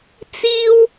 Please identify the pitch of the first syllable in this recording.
high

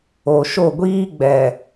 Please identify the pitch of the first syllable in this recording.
low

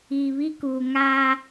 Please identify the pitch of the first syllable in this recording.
low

